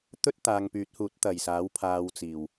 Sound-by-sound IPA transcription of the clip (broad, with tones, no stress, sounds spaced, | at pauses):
t̪ ɵ˥ t̚ t̪ aː˨ ŋ p yː˨˥ t̚ h uː˨˥ t̚ t̪ ɐ˨˩ j s aː˨˥ w pʰ aː˧ w t͡s iː˨˩ w